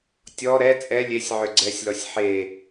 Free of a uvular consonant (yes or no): yes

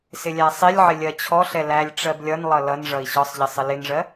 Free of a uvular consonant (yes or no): yes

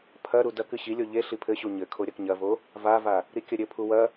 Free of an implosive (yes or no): yes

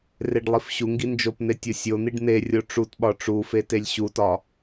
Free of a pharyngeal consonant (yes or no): yes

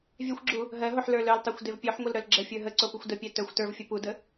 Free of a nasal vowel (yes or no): yes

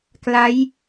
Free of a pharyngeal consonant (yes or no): yes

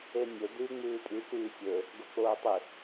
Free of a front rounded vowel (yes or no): no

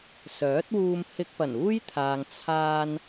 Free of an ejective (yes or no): yes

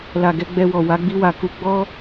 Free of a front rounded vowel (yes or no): yes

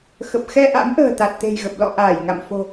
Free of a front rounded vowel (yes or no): yes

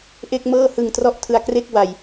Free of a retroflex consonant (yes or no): yes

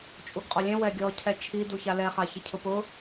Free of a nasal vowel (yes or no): no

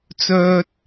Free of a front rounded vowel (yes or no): no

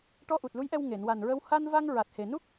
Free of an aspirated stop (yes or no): yes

